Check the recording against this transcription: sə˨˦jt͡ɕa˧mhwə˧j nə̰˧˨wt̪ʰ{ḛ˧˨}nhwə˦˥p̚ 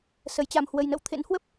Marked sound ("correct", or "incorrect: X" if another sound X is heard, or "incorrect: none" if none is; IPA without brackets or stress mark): incorrect: ḛ˧˥